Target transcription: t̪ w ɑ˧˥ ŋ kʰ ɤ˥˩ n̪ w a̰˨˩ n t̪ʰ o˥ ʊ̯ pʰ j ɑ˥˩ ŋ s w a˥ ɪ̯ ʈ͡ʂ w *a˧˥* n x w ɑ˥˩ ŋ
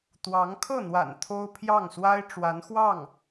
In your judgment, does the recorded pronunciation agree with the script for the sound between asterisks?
yes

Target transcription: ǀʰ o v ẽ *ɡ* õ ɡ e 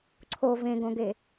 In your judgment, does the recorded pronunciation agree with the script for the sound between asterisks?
yes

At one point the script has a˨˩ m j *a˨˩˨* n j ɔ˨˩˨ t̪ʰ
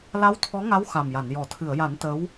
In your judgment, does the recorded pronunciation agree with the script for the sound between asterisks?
yes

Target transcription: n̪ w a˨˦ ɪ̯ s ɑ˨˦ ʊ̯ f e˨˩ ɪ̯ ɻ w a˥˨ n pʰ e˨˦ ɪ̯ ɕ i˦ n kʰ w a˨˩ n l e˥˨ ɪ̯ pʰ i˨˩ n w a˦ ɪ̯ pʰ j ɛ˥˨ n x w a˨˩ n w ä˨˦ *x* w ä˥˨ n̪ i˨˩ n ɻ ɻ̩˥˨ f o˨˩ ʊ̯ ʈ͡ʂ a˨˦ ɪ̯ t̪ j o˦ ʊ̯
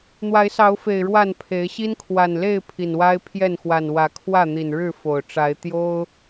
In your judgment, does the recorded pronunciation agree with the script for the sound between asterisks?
no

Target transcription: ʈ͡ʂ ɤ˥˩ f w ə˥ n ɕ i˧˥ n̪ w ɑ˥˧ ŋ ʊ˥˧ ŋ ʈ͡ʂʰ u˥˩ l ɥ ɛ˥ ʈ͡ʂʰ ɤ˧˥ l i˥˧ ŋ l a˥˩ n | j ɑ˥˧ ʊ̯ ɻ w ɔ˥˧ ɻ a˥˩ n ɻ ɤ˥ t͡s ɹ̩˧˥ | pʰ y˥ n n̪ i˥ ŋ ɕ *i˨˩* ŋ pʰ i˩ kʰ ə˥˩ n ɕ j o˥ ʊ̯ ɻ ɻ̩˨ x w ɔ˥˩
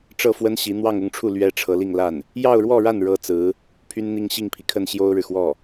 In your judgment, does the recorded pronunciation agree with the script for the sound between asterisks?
no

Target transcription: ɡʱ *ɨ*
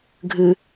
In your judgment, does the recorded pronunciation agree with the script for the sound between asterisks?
yes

